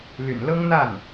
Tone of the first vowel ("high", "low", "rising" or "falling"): low